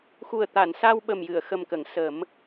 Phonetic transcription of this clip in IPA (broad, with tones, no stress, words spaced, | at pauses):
xu˨˩ə̯t̪a˨˩˨nsa˧w ɓə˨˩mjɨ˨˩˨ə̯xə˨˩mkə˨˩˨ŋ sə˨˩˦m